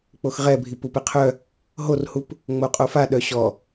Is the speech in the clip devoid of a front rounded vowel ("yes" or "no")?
no